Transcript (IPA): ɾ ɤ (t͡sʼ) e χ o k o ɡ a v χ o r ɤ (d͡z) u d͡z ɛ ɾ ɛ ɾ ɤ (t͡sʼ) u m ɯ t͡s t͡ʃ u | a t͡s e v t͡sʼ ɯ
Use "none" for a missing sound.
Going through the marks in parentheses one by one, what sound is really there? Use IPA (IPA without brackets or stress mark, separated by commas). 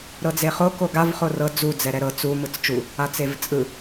d͡z, d͡z, t͡s